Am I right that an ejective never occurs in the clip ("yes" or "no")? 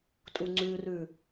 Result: no